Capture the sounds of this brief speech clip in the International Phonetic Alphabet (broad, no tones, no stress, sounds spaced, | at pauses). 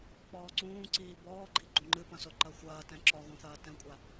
k͡p ɔː ǀ ũː ǀ iː b ɔː ɡ͡ǃ i ɡ͡ǃ ũ ŋ͡ǃ ɨ p ɐ̃ s o ǃ ɐ xʷ ɐː t ɛ̃ ǁ ɔ ɣ õ θ ɐː t ɛ̃ kʷʼ a